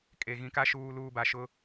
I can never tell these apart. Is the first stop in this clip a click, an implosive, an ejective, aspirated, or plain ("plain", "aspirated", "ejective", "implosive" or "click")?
ejective